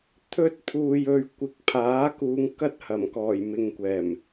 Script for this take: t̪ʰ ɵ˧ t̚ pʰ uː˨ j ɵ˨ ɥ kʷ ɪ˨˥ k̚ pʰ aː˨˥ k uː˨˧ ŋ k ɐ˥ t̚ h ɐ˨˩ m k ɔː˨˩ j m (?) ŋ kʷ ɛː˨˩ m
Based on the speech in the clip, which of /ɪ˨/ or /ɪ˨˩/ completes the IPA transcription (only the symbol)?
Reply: ɪ˨